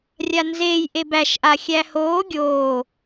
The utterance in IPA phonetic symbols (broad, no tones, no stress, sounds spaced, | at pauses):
rʲ a n z eː j ʔ e b æ ʃ ʔ a xʲ æ h oː ɡʲ oː